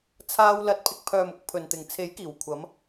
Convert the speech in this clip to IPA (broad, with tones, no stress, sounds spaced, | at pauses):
t͡sʰ aː˧ w l ɐ˨˥ t̚ pʰ ɪ˨ k̚ pʰ œː˨ m ʊ˨˥ k̚ pʰ ɵ˨ n t̪ ɪ˨ ŋ t͡sʰ e˨˥ j k iː˨˩ w kʷʰ ɐ˨˧ m